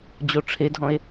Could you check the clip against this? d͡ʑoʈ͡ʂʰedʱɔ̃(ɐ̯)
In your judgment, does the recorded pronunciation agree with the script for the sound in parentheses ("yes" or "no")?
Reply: no